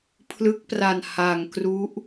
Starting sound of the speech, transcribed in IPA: pʰ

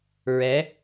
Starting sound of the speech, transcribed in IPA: ɹ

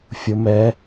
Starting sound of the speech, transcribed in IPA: fʲ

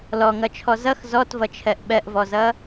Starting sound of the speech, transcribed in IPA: l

